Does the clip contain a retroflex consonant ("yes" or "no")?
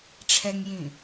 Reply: yes